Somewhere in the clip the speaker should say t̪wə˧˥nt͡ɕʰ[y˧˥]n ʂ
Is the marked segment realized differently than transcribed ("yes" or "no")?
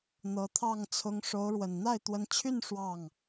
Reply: yes